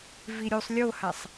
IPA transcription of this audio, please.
v i ɾʲ u sˤ lʲ o h a sˤ

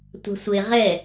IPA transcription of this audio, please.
tʷ a̤ sʷ e ʁ ɛ

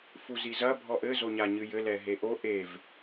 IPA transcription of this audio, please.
f u z i z ɐ bʱ ɔ ʔ ɘ z o ɲ a ɲ ɨ j ɘ l ɛ ɦ e ʔ o ʔ e v

